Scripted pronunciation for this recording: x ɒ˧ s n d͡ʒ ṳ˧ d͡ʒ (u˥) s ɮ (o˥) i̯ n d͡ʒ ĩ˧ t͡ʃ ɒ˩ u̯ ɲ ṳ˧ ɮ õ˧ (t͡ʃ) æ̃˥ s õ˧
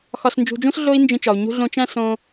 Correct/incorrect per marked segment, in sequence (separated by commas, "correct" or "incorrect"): incorrect, correct, correct